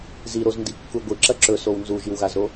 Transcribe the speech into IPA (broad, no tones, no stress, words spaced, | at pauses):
ziɾozndikːu ɡʷɨǁɐ ǁɵsow nzuʒiwɣazɾo